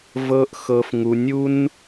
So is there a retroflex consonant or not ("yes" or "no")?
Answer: no